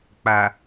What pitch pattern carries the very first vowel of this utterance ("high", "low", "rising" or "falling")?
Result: low